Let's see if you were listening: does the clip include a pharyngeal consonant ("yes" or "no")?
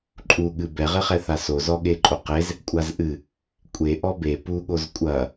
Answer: no